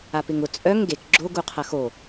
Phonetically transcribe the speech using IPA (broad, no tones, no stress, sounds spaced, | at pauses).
a p ɪ ŋ ʊ t͡sʼ œ ŋ ɡ e k ɡ͡ǁ o ɡ u qʰ ɐ x o